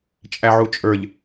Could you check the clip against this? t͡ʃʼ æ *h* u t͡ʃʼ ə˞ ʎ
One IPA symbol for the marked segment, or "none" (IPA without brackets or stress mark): ʕ